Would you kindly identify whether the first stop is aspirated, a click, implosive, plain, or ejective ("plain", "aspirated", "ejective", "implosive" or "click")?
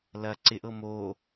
click